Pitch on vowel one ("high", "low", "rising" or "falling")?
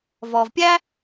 low